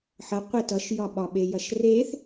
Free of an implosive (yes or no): no